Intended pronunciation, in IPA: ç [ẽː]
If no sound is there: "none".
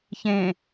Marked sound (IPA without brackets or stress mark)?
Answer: ẽ